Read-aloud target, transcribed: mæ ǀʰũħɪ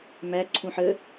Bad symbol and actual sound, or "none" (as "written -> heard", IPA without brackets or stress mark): ɪ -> ə